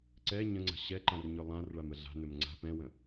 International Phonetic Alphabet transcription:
ǀ ɛ ɲ ə̃ ŋ͡ǀ a̤ ɕ ɛ ǃ ã r ɲ ɵ lˠ ã r ɭ a m ə ɮ a̤ n ɵ m ŋ͡ǀ a̤ p ɛ̃ w ə̃

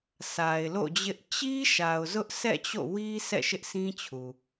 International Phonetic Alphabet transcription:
s a˨ ɪ̯ l o̰˦˨ d͡ʑ ɪ˦ ʔ t͡ɕ i˦ ʃ a˨ ʊ̯ z ʊ˦ ʔ s ɛ̰˦˨ t͡ɕ o̰˦˨ w i˦ s ɛ̰˦˨ ʃ ɪ˦ ʔ s ĩ˦ t͡ɕʰ u˨

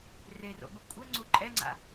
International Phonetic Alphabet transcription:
r e r o̰ ɓ u kʷʼ ɘ ŋ͡ǀ u ǃʼ ɛ ŋ͡ǀ a̰

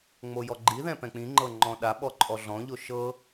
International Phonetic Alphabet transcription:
ŋ͡m o j ɔ ɡ͡ǃ i ð ɛ̃ p ɛ̃ k͡p ĩ ŋ͡ǃ ɤ ŋ͡ǃ ɔ̃ ɗ a ɓ ɔ ǃʼ ɔ ɮ ɔ̃ ʎ o ʃ ɤ

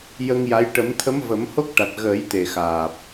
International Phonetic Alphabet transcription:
j ə˧ ŋ j a˧˥ j ʈ ə˨˩˦ m t̪ʰ ə˧˥ m v ə˨˩˦ m h o˦˥ k̚ ʈ a˨˩ t̚ ɣ əː˨˩˦ j t̪ e˨˩ x aː˨˩ p̚

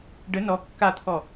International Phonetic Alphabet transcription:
ɖ ə n ɔ kː a t̪ʰ ɔ

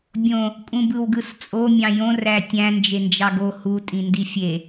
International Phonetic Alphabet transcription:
bʲ õ | kʼ ũ b ɯ w ɡ ɯ s t͡sʼ o mʲ ɑ̃ j õ r æ tʲ æ̃ n d͡ʒ e n d͡ʒ ɑ ɡ o h u tʼ ĩ n d i fʲ e

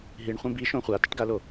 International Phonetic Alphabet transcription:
ɦ i ɳ χʷ ẽ b i ʃ õ χʷ a t ɪ ʈ ɡ a l o

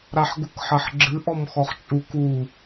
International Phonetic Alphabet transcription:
ɾ a ħ ɡ u k ħ ɐ ħ ɡ͡ǁ ɨ ʔ ɔ m x ɔ χ t͡ʃʼ u k u

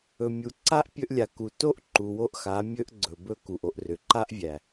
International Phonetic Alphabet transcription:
ɵ˨ mʲ u˨ ǀ a˦ ʔ pʲ ɵ˧ ʔ lʲ a˨ k u˨ t o˦ ʔ ǃ u˨ w o˦ ʔ x a˨˦ mʲ ɵ˦ ʔ ɡ͡ǀ ɵ˨ b ɵ˦ k u˨ ʔ o˧ ʔ r ʏ˨ ǃ a˦ ʔ vʲ æ˨

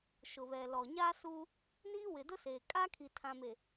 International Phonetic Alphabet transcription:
ʃ ʊ˨ β ɛ˨ l ɔ˨ ɲ aː˦ s uː˦ | n iː˦ w ɪ˨ d ʊ˦ s eː˨ kʼ aː˦ kʰ i˨ tʰ ã˨ m e˨

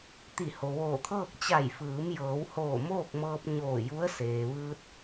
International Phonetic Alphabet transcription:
t̪ i˧˩ h o˩ ʋ oː˧˩ t̪ʰ ɤː˥˨ k̚ t͡ɕ a˧˩ j f ɯː˩˧ m j ɤː˩˧ w h oː˧˩ m oː˥˨ k̚ m ɤː˧ p̚ ɲ oː˧˩ j u˧˥ ə̯ s eː˩ ʋ ɯː˧ t̚

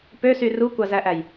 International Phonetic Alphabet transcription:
p ø s y r u kʷ ɑ z æ ʔ æ j

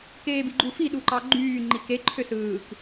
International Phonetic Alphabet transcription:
k eː b i ɡ͡ǃ u f i ɗ u ǃ ɑ ɡ͡ǃ yː ŋ͡ǃ i k e ǃʰ ø s ɯː k

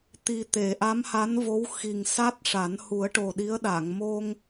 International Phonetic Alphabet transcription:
t̪ i˨˩ t̪ e˨˩˨ ʔ a˧˥ m h a˧˥ n v o˧˥ w x i˨˩ ŋ s a˦˥ t̚ ʂ a˨˩˦ n h u˨˩˦ ə̯ ʈ o˨˩ ɗ i˧˥ ə̯ ɗ aː˨˩˨ ŋ m o˧ ŋ

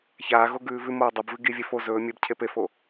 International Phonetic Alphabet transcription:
ç aː ɣ o ɡ ʉː v ʉ m oː dˤ ɵ b v ɨ ɡ i vʲ e f o z ɵː mʲ e b cʰ e p e f oː

